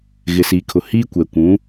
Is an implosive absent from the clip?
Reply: yes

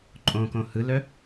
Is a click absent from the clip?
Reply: no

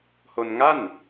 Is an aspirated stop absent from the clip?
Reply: yes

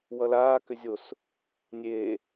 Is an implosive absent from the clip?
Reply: yes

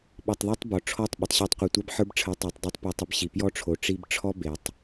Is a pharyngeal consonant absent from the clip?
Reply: no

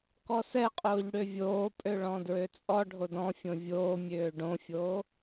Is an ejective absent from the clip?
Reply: no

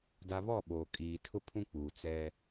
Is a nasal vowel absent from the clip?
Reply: no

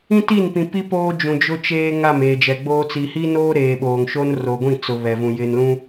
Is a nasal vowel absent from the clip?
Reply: no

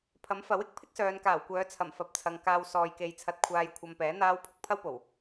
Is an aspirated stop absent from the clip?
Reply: no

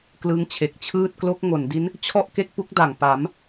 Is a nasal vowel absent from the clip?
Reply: yes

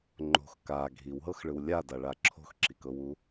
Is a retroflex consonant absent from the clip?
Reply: no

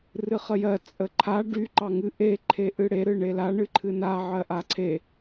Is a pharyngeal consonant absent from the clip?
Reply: no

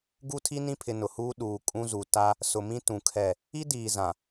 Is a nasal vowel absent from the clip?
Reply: no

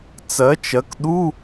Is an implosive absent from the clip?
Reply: no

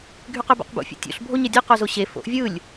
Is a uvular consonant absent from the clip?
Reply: no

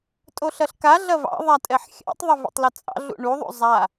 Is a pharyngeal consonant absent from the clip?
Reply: no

